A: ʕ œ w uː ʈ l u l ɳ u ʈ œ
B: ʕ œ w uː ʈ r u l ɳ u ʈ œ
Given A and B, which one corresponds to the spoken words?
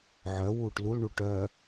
A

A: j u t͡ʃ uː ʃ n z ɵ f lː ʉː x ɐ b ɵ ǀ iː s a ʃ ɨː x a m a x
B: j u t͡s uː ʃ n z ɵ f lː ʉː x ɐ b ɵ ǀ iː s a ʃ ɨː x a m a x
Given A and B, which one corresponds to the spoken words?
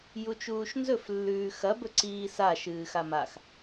A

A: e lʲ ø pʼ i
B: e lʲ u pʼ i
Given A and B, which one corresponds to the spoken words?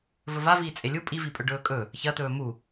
B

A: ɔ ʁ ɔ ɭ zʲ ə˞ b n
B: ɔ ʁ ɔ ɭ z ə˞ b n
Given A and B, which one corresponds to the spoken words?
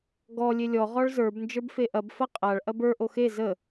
B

